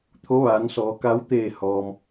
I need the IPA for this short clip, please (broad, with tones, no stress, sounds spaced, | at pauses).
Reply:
t̪ʰ o˧˥ ʋ aː˩˧ n s ɔː˩˧ k a˧˥ w t̪ eː˧˩ h ɔː˩ m